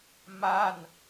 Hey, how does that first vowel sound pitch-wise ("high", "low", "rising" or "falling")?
falling